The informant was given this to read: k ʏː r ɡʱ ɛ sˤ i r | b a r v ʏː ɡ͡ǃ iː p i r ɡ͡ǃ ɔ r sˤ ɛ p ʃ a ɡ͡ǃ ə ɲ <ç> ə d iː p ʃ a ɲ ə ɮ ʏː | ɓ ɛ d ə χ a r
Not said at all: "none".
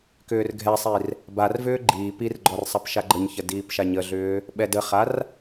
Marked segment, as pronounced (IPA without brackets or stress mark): ç